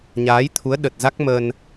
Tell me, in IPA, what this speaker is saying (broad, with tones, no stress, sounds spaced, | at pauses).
ɲ aː˨˦ j t̪ʰ u˨˦ ə̯ ɗ ə˨˩ t̚ z a˦˥ k̚ m ə˧ n